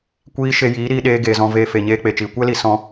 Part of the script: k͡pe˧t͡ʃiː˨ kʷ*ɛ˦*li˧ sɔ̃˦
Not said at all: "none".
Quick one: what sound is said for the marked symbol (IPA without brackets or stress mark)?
ɛ˦